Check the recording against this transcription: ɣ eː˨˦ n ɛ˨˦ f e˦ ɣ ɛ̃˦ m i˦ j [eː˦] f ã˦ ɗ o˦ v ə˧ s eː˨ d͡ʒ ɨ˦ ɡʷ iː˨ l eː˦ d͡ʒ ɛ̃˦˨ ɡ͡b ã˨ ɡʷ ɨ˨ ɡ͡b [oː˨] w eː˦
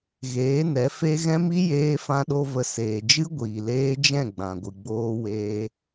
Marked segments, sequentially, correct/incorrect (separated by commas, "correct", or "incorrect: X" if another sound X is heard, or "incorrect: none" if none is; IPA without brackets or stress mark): correct, incorrect: oː˦